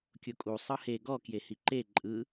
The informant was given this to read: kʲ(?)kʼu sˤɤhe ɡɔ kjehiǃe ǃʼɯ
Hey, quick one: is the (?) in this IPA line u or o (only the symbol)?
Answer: o